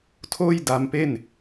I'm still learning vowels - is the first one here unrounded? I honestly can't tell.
no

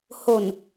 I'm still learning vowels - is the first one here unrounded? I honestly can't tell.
no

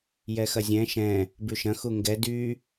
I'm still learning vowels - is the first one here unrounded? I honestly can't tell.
yes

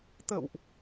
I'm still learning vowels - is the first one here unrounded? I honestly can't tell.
yes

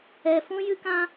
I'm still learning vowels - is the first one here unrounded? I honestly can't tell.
yes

